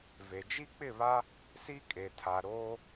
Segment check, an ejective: present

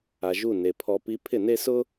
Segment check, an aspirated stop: present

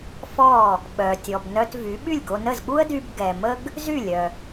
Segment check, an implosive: present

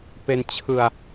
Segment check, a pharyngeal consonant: absent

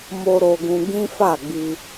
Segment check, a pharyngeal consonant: absent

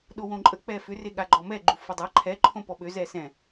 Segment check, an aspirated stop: present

